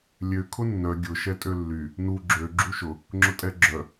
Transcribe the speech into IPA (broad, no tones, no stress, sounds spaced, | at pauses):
lʲ ø kʰ ʊ nː œ ɡʲ ʊ ʃ ɛ tʼ ø lː y | n u ɡ͡ǁ ø ɡ͡ǁ u ʃ ʊ | ŋ͡ǁ ʊ tʼ ɛ ɡ͡ǁ œ